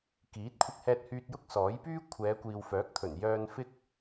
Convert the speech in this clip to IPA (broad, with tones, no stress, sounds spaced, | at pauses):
k iː˨˥ t̚ kʷʰ ɪ˧ k̚ h ɛː˧ t̚ h yː˧ t̚ j ʊ˥ k̚ s ɔː˨˥ j p yː˥ kʷʰ ɛː˨˧ kʷ iː˨ w f œː˨˥ k̚ t̪ʰ ɵ˨˩ n j œː˧ n f ɪ˥ k̚